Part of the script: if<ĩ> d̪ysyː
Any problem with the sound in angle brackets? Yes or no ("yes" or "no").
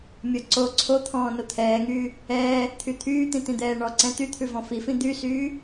no